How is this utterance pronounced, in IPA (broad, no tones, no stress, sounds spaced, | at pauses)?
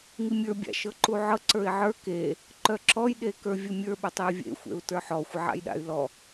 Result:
ŋ i mʲ ə˞ bʲ a̰ ʃ ɤ ǃ u ʕ ɤ ǀ ə˞ i̯ ʕ ə˞ k e | ǃ œ ǁ ɔ j ɗ e k ə˞ vʲ ə mʲ ə˞ ɓ œ tˤ e vʲ ḛ xʷ ḛ u̯ t ə˞ ħ ɔ xʷ ə ʕ a̰ j ɗ a̰ y̯ l ɔ